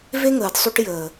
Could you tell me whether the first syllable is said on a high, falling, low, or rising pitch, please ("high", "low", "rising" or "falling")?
high